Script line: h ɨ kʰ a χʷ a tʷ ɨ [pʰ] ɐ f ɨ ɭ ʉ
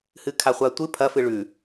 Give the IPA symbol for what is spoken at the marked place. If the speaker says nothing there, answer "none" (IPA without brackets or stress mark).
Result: pʰ